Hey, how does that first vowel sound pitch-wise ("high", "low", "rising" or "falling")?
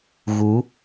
rising